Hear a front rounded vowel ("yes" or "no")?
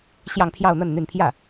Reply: yes